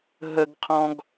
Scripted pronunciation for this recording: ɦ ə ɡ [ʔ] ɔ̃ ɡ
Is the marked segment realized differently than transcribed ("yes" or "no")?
yes